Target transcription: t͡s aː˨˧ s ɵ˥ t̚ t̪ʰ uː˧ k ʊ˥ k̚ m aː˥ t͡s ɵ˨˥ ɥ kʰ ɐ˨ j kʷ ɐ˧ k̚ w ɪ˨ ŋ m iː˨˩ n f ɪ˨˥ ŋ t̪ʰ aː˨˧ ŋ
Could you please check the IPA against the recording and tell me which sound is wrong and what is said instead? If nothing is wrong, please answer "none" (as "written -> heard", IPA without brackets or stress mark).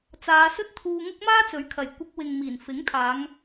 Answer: k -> ŋ